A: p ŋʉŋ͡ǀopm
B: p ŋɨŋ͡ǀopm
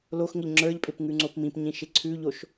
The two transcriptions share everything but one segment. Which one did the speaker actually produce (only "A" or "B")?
A